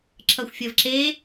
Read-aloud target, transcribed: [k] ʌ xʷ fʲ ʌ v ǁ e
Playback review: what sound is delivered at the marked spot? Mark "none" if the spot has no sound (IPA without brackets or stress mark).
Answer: ǁ